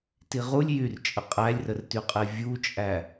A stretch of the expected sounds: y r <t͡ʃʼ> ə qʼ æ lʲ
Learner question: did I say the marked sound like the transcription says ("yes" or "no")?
yes